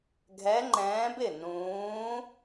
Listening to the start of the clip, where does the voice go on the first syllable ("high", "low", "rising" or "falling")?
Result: rising